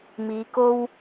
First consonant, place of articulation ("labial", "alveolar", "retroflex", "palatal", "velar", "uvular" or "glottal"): labial